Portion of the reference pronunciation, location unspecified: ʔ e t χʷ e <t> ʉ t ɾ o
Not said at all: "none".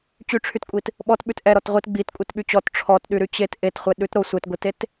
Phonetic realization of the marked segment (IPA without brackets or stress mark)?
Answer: ɗ